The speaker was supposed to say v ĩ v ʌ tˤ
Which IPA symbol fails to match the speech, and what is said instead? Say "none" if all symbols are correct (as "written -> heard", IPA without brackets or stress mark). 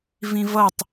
none